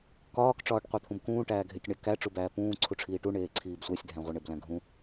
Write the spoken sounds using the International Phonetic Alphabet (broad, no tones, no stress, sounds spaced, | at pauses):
k ɒː k ʈ͡ʂ ɒː ʈ qʷ e t̪ʰ ũ b k ũː ʈ æː ɡʱ e tʲ ɳ æ k æ ʈ͡ʂ u b æː p ũː ǀʰ u ʈ͡ʂʰ iː ʈ u ɳ eː ǀʰ iː b sʷ æ sʲ dʱ æ̃ ʁʷ i ɳ e b l æ̃ ɡʱ ũ